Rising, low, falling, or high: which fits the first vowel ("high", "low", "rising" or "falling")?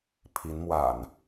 rising